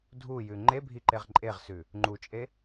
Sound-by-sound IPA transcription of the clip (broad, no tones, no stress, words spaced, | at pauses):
dʱujʉ ŋ͡ǃebʱiǃeʁ ǃʼeʁsʉ | ŋ͡ǃut͡ʃʼe